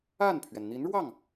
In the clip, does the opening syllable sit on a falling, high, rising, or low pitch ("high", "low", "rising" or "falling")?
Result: falling